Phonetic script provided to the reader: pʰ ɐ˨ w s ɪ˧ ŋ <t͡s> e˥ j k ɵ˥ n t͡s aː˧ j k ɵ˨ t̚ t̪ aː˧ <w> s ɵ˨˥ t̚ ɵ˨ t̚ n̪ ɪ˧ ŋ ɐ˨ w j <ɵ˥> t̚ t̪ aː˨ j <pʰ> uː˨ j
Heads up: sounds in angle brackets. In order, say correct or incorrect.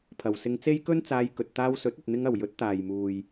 correct, correct, incorrect, incorrect

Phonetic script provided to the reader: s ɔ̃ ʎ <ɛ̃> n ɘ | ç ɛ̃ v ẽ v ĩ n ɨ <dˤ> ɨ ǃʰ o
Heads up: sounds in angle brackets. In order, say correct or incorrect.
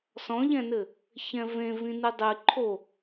correct, correct

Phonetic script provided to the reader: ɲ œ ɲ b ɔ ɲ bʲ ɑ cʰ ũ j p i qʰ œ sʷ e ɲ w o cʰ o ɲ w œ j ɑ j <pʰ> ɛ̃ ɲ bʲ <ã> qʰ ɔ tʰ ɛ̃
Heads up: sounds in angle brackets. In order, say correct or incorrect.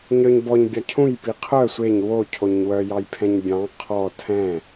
correct, incorrect

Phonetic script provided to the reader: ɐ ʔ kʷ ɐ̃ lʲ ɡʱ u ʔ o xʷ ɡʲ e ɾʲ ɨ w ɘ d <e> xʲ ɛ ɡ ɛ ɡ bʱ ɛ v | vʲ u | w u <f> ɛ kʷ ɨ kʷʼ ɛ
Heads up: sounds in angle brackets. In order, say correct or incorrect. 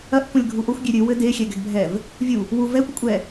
correct, incorrect

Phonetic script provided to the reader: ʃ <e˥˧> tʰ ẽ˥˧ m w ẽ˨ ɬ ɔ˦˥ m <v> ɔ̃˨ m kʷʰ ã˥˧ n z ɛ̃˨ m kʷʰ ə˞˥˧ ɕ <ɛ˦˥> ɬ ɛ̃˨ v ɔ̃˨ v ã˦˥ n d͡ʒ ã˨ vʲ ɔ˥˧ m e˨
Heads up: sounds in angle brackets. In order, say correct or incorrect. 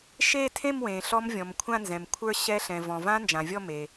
correct, incorrect, correct

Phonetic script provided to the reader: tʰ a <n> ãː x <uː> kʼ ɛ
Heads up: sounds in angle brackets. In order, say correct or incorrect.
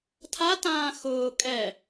incorrect, incorrect

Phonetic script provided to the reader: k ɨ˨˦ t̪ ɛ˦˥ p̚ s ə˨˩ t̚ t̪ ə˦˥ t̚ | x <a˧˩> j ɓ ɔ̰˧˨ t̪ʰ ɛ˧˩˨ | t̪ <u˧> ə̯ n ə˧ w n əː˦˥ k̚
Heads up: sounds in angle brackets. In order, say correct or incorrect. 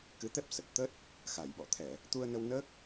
correct, correct

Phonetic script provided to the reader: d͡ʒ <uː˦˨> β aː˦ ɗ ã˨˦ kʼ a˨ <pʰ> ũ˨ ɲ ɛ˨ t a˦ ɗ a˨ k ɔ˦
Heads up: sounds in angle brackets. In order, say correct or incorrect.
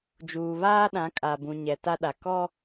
incorrect, incorrect

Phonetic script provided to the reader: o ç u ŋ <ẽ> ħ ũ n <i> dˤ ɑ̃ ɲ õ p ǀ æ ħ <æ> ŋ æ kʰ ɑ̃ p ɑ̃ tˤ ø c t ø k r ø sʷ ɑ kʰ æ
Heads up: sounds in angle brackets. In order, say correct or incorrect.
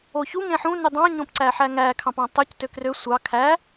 correct, incorrect, correct

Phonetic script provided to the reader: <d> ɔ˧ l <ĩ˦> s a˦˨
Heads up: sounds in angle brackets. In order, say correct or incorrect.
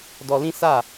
correct, correct

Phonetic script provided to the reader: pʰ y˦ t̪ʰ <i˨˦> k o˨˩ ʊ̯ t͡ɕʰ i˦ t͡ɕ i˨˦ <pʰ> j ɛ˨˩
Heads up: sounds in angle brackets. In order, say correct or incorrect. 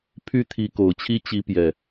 correct, incorrect

